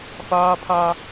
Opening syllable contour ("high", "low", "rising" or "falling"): high